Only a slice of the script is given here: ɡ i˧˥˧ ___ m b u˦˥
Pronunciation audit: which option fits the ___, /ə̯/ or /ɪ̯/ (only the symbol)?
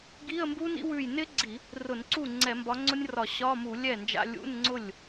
ə̯